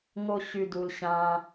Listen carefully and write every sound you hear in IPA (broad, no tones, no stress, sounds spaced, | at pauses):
ŋ o ɕ y d u l ɕ ã